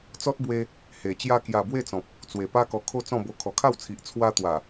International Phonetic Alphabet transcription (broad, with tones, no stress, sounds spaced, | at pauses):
t͡s ɔ˦ t̚ b w e˧ | h e˨˩ t͡ɕ j a˧ k j a˨˩ b w e˥˧ t͡s ɔ̃˨ p̚ | t͡s w e˨˩ p a˦ k ɔ˧ kʰ o˥˧ t͡s ɔ̃˥˧ b o˧ kʰ ɔ˨˩ kʰ a˥˧ w t͡sʰ i˨ ʔ t͡sʰ w a˧ t̪ w a˨˩